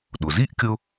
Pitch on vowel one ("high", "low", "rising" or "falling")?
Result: low